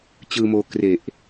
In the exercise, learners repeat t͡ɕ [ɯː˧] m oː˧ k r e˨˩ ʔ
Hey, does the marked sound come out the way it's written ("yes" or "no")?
yes